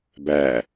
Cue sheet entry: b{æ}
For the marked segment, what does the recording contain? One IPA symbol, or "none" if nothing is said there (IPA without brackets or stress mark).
æ